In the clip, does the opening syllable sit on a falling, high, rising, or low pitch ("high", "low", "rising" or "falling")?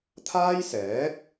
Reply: high